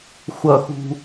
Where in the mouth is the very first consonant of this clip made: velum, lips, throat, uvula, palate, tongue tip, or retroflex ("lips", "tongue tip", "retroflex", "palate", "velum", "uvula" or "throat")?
velum